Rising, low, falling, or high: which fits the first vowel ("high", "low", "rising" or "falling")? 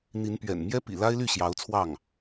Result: rising